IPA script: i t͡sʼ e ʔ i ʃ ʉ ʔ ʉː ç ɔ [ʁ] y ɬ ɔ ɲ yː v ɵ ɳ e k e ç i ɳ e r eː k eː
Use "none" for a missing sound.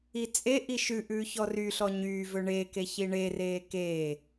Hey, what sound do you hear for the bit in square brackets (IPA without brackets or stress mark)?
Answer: r